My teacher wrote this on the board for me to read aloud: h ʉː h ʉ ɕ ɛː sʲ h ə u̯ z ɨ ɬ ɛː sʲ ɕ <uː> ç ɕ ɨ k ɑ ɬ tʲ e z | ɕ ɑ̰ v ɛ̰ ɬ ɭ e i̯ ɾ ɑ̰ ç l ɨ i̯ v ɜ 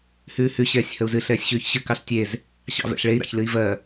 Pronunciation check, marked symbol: incorrect: ʉː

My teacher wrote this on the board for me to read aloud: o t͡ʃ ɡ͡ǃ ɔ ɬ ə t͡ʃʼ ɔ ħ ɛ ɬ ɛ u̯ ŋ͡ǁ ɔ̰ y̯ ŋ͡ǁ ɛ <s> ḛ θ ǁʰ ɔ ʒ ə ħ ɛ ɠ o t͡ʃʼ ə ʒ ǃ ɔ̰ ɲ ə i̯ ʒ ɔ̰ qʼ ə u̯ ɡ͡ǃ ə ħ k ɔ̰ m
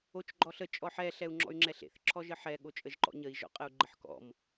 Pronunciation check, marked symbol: incorrect: ɬ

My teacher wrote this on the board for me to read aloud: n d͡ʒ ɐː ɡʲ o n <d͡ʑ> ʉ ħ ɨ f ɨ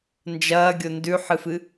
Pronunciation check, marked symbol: incorrect: d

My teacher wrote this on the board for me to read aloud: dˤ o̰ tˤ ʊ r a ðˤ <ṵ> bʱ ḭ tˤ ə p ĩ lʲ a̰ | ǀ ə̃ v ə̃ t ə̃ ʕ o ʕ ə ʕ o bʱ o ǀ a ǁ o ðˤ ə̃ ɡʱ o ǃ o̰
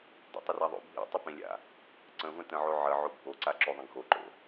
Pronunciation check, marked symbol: incorrect: o̰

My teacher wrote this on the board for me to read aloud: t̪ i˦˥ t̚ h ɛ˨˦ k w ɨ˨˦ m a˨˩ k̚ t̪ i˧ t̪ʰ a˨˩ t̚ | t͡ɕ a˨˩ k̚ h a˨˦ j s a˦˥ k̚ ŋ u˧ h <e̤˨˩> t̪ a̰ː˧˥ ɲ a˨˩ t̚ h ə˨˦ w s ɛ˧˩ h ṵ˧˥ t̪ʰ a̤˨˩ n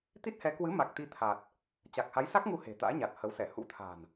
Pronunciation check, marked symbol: correct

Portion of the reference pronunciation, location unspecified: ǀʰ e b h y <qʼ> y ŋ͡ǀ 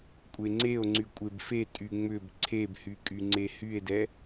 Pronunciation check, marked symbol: incorrect: kʼ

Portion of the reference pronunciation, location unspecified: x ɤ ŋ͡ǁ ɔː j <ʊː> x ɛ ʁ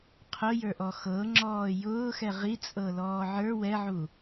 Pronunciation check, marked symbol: correct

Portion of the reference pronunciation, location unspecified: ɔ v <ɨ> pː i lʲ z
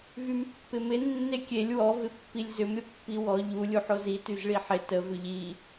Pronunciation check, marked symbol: incorrect: ɪ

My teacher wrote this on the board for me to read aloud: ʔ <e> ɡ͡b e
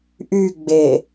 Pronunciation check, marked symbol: incorrect: y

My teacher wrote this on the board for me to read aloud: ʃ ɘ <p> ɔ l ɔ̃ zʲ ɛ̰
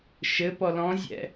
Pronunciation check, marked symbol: correct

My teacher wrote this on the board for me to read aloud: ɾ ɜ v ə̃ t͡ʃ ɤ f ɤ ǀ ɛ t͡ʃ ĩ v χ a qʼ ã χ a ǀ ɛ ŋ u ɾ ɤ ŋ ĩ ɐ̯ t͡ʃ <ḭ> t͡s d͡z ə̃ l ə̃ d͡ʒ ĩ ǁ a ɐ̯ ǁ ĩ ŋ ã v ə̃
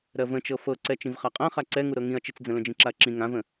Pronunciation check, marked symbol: incorrect: i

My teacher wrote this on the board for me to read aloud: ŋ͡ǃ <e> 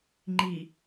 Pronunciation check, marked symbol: incorrect: i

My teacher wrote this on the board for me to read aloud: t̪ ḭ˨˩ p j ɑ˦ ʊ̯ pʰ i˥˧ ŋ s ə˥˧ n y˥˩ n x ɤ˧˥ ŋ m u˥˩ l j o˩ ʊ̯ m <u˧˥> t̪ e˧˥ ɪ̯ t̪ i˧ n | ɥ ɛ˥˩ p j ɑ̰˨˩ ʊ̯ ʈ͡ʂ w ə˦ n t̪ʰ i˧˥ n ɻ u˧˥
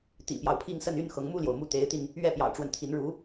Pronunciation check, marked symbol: incorrect: u˥˩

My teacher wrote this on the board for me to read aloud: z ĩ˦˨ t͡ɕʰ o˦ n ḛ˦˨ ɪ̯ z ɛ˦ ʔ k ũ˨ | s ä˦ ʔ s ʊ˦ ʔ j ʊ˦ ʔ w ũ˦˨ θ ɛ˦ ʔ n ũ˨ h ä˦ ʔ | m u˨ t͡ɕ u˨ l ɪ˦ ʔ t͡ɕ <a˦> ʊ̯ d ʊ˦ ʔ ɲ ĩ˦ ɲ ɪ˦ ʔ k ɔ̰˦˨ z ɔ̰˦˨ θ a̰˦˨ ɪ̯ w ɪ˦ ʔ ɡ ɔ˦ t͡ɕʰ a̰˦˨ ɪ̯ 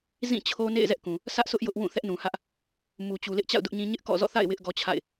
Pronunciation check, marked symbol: incorrect: a̰˦˨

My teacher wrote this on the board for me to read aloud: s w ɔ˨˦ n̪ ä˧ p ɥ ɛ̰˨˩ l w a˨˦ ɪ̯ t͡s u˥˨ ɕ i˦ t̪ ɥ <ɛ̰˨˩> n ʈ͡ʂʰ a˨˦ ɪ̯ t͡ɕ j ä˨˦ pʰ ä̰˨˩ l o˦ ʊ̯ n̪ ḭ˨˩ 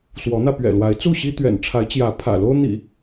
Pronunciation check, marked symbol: correct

